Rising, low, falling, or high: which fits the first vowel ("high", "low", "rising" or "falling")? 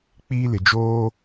high